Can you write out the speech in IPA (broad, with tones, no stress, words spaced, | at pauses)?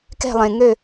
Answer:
kɛ̤˥˧lˠẽ˧ŋø˥˧